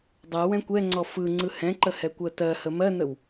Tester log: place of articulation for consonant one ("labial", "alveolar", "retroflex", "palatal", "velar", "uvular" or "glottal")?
alveolar